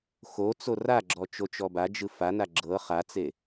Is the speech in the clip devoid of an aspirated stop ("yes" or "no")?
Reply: yes